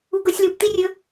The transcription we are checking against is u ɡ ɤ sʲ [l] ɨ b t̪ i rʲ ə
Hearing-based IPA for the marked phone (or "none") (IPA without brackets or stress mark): l